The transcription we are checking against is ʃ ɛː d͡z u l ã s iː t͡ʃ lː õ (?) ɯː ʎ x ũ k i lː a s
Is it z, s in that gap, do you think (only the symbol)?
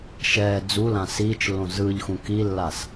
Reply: z